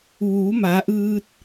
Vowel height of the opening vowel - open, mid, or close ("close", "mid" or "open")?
close